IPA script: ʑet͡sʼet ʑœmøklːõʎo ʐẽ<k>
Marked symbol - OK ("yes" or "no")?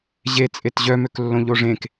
yes